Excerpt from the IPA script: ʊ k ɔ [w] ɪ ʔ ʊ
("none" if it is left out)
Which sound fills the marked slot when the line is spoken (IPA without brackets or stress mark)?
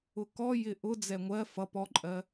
j